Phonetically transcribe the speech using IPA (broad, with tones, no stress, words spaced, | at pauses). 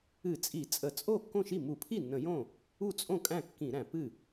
ɨ˧˩˧t͡sʼi˧˩˧ t͡sʼə˧˩˧ t͡sʼo˥˩ kːõ˥˩ʃi˥˩ mu˧˩˧pʰi˥˩nːə̃˧˩˧ jõ˥˩ | u˥˩t͡sʼõ˥˩ kʼæ̃˥˩kːĩ˧˩˧ɾæ̃˧˩˧ pɨ˥˩